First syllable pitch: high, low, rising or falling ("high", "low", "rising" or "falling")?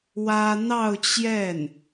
high